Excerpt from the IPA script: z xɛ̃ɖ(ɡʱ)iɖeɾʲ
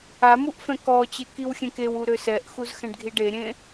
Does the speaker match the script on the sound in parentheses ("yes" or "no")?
yes